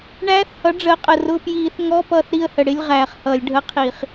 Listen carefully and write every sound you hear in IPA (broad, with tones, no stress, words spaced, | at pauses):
ɳæː˧˥θhʌ˩˥ ɖ͡ʐəː˩˥qʼə˨˩ rʊ˧˥˧ pjiː˧˩˧θŋɔ˧˥˧ pʌː˦˨θɾi˦˨ə̯hə˨˩ɽɪ˧˥˧lʲ ʁæː˨˩χhʌː˧˩˧lʲɖʱə˧˥˧qʰiː˧˩˧χ